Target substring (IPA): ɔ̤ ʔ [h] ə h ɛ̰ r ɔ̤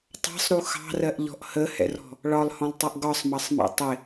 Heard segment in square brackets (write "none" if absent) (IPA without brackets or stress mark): h